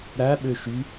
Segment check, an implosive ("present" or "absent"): present